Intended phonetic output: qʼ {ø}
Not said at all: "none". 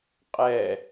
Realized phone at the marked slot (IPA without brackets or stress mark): ɛ